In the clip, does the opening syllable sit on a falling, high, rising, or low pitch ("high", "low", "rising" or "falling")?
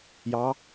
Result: rising